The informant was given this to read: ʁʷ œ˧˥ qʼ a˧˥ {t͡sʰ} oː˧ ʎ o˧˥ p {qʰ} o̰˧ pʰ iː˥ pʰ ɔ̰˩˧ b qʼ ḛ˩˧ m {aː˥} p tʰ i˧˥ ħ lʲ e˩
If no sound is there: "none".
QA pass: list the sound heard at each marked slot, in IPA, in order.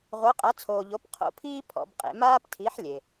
t͡sʰ, qʰ, aː˥

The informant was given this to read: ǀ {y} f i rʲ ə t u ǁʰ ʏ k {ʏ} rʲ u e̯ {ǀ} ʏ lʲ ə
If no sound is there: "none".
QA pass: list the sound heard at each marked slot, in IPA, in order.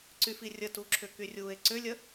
y, y, ǀ

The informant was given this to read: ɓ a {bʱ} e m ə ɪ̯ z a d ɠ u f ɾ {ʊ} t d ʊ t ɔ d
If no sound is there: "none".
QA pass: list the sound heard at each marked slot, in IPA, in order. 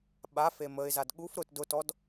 f, ʊ

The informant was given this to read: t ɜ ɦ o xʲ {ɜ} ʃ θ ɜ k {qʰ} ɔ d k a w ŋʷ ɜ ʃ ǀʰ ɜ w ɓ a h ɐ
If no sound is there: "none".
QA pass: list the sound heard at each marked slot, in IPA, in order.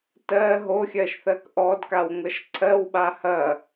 ɜ, ʔ

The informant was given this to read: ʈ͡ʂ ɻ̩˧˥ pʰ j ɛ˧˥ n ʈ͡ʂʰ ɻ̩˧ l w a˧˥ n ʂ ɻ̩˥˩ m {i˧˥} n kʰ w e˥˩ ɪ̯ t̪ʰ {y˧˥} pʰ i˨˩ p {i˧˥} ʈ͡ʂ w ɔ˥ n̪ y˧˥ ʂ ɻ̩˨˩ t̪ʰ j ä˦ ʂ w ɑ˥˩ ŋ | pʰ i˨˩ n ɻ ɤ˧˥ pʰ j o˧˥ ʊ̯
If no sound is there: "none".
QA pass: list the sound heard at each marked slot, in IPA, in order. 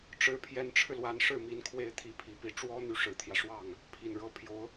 i˧˥, i˧˥, i˧˥

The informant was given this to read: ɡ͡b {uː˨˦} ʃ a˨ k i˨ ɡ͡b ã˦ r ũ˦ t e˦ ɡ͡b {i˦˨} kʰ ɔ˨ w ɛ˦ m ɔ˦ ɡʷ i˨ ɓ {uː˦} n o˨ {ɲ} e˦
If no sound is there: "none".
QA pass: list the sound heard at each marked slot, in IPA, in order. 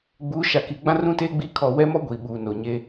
uː˨˦, i˦˨, uː˨, ɲ

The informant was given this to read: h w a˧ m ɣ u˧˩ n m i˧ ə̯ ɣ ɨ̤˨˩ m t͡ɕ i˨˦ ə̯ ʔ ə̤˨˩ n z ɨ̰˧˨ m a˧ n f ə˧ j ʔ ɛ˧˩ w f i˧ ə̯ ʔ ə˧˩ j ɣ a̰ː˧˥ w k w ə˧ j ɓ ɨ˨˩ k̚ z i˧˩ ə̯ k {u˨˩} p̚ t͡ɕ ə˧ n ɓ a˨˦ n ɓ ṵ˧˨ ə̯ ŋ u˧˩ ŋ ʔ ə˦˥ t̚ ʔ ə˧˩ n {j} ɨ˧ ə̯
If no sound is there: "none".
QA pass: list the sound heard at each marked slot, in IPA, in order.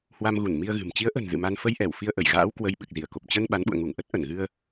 o˨˩, ɣ

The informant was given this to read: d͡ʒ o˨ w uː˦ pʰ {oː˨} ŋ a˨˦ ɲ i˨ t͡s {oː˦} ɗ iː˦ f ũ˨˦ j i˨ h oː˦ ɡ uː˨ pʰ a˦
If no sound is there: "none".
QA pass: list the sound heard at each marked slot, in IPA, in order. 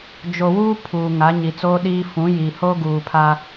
uː˨, oː˦

